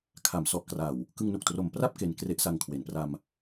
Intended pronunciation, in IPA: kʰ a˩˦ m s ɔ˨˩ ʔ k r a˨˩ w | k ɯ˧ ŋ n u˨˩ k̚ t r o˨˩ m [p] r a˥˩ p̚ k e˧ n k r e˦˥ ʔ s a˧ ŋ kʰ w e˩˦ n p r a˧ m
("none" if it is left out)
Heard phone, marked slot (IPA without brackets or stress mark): p